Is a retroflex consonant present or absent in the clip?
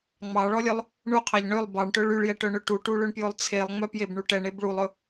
present